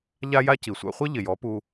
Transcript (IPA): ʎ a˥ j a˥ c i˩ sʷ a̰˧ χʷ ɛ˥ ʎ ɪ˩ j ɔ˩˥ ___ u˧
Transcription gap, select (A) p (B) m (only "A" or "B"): A